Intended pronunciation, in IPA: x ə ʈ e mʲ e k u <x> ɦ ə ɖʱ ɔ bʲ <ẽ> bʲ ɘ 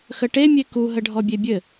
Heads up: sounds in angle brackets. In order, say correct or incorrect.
incorrect: none, incorrect: e

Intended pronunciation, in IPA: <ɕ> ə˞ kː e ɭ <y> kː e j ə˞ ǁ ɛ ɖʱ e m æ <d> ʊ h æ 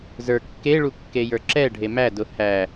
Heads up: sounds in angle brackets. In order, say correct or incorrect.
incorrect: z, incorrect: u, correct

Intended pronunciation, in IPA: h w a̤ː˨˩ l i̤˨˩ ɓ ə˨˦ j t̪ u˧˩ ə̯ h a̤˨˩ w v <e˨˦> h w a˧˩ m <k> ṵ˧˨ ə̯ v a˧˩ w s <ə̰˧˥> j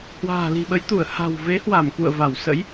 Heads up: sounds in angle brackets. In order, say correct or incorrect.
correct, correct, correct

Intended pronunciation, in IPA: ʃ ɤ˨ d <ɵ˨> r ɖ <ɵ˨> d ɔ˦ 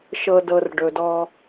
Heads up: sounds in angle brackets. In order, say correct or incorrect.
incorrect: ɤ˨, correct

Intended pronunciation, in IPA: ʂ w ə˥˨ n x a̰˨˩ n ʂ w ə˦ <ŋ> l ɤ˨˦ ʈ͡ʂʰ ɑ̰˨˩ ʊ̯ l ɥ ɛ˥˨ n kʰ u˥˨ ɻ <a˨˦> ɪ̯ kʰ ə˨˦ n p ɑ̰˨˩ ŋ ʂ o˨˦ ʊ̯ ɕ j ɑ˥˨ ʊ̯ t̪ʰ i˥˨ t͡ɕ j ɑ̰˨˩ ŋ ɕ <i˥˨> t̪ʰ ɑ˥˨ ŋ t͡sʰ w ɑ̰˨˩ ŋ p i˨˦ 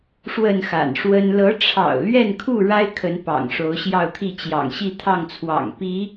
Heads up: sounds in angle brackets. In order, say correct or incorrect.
incorrect: n, incorrect: a˦, correct

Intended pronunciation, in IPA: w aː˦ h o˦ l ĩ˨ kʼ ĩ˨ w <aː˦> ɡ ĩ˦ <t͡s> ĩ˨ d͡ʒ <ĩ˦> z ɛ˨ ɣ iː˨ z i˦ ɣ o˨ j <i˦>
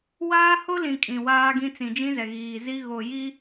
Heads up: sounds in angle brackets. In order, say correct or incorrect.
correct, correct, correct, correct

